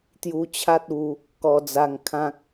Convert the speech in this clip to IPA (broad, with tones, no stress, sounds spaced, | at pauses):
t̪ j u˧ t͡ɕʰ a˦ t̚ u˧ | k ɔ˧ d͡z a˧ ŋ kʰ ã˦ k̚